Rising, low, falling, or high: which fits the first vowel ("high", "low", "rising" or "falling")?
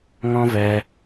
high